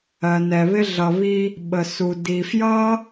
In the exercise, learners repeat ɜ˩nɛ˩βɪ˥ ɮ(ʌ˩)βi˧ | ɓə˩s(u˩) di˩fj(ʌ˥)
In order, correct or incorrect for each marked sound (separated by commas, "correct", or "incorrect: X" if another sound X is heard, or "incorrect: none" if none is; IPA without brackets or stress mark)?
correct, correct, correct